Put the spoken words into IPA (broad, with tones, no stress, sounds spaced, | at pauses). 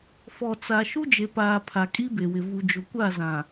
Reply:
f ɔ˨ t͡s a˨ ʃ u˦ d͡ʒ e˨ p aː˨ pʰ a˨ kʼ i˦ b e˨ w ɪ˨ v u˨ d͡ʒ ʊ˨ kʷ a˦˨ z ã˨